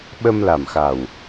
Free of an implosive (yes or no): no